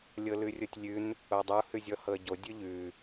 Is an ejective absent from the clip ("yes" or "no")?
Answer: yes